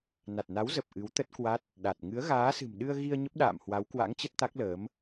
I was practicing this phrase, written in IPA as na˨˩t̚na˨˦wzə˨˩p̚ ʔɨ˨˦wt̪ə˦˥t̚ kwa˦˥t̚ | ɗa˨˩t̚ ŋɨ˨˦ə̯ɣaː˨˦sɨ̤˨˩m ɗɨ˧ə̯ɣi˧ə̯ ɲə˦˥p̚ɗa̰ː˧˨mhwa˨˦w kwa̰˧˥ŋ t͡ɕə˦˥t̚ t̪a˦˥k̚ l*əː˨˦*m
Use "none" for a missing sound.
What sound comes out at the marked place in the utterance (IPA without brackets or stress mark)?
əː˨˦